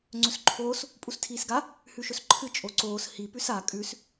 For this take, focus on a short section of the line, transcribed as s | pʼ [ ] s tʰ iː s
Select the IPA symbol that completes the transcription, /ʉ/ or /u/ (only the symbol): u